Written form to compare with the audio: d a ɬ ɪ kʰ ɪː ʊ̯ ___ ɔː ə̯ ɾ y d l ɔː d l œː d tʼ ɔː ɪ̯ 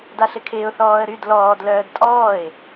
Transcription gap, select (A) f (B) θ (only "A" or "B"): B